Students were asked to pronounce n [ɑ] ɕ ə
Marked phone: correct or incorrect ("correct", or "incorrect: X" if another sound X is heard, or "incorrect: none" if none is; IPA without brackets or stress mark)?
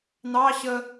correct